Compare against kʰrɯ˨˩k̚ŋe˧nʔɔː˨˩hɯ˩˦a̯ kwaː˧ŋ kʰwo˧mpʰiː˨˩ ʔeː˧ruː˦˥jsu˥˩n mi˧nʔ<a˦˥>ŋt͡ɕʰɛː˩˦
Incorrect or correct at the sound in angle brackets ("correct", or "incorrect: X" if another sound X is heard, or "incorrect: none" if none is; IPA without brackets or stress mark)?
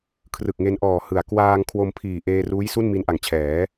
incorrect: a˨˩